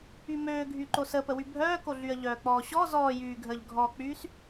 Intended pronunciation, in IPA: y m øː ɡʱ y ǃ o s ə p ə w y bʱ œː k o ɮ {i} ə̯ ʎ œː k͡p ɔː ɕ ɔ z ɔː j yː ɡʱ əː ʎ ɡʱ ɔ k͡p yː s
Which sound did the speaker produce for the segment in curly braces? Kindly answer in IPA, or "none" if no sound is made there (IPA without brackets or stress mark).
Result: y